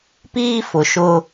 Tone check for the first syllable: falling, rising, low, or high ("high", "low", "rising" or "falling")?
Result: high